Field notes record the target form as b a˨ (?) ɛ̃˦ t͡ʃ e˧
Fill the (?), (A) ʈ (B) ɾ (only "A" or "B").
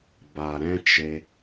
B